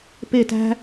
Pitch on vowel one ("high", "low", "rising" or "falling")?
falling